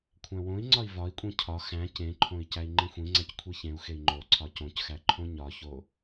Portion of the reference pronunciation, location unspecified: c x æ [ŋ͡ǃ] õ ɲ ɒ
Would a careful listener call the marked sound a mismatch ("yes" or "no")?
yes